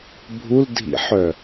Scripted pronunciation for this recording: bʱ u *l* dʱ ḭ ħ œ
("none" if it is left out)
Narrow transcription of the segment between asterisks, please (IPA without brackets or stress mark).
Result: l